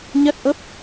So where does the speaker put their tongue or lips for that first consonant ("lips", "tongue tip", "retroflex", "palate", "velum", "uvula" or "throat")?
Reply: palate